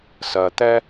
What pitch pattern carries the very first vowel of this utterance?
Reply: low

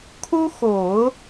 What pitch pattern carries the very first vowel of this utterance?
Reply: high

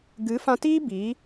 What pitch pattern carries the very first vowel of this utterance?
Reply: rising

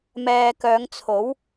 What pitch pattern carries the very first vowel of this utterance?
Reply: low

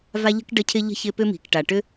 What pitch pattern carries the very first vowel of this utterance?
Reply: high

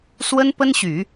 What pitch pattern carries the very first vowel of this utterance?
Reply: high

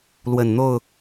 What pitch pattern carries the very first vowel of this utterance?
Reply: low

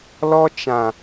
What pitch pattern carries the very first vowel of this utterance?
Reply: high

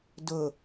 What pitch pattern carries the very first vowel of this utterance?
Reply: low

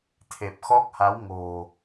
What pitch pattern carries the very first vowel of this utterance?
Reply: low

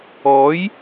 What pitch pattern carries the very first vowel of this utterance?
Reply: rising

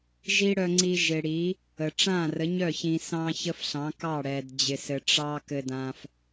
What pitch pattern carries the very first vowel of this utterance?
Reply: high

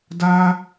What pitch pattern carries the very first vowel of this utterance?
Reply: high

